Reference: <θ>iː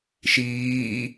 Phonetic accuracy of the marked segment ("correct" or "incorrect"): incorrect